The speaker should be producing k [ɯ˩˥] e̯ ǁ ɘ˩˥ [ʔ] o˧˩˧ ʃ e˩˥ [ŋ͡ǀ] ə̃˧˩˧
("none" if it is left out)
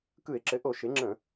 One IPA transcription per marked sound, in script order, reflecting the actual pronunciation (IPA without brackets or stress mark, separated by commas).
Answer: ɯ˧˩˧, ʔ, ŋ͡ǁ